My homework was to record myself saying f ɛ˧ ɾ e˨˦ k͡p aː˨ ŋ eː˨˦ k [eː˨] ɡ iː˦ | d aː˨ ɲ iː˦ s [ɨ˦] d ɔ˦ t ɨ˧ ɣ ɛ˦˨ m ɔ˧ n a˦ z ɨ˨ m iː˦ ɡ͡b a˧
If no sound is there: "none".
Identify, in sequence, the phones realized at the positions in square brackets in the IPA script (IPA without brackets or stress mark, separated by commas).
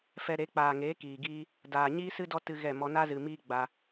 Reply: iː˨, ɨ˦